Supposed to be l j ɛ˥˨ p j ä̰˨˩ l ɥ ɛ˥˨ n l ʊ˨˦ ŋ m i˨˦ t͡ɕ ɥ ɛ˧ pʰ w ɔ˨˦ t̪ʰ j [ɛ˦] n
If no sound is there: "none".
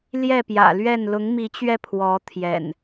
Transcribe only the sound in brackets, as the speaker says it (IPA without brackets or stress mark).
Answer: ɛ̰˨˩